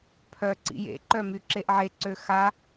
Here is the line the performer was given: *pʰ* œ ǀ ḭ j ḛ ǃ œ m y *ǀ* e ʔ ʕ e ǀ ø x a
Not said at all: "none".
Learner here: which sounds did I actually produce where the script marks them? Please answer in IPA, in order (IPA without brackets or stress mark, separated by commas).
pʰ, ǁ